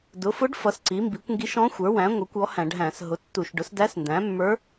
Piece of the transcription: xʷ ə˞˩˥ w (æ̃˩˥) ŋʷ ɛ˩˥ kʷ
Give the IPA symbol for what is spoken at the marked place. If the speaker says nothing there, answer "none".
æ̃˩˥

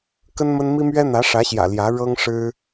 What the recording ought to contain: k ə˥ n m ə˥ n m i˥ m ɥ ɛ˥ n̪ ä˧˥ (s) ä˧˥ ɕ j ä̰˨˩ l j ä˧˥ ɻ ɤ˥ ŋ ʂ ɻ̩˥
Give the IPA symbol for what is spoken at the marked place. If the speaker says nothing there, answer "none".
ʂ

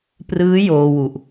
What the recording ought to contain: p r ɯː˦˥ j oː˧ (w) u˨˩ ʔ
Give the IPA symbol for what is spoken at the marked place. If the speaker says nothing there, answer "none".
w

